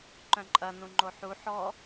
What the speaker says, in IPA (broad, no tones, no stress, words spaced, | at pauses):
ǃœ̃ǃʼɐ nũŋ͡ǃoħu ħɔ